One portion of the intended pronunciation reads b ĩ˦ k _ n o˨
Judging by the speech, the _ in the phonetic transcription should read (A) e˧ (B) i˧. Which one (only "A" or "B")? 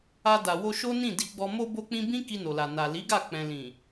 B